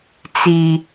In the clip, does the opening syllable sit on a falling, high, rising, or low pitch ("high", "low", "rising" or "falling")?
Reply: low